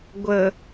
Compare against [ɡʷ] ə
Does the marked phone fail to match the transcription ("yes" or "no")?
no